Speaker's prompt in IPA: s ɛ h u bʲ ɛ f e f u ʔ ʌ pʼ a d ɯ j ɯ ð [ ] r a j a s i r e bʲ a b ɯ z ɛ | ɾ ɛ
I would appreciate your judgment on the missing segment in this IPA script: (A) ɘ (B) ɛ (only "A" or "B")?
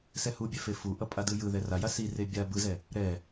B